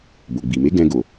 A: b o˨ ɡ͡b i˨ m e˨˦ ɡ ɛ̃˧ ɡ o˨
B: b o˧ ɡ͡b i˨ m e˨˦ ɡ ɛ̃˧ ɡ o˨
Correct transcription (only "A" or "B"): A